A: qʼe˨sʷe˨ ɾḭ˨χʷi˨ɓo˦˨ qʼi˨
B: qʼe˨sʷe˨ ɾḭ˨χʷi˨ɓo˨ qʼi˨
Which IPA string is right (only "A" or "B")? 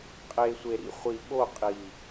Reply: A